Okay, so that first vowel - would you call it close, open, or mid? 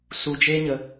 close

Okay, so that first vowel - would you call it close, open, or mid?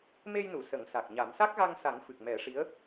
mid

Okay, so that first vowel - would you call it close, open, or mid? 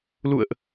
close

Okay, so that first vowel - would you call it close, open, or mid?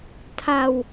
open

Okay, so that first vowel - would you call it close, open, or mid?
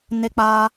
mid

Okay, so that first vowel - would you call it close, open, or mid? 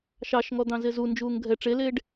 open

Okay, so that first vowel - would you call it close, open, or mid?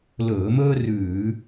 mid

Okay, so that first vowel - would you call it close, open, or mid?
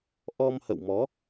mid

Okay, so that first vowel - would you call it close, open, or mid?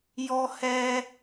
mid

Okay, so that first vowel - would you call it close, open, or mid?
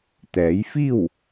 mid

